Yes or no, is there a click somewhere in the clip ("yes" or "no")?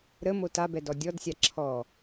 yes